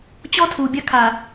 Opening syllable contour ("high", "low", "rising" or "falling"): high